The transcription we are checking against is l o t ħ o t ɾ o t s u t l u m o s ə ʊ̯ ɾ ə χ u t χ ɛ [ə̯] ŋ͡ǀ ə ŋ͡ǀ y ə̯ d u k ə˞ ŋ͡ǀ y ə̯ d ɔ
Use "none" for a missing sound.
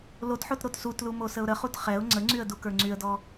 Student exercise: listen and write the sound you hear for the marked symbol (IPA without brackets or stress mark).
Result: ʊ̯